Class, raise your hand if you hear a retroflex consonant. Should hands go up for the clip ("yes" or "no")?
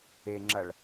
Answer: yes